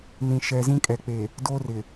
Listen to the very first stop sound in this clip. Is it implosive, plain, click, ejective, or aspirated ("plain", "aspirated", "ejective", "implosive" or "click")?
ejective